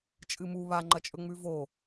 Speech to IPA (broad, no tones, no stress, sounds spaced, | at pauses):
t͡ʃʼ ɨ m u β a ŋ͡ǃ ɐ t͡ʃʼ ɵ ŋ͡m ʉ v o